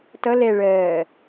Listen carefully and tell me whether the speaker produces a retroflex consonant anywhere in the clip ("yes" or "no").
yes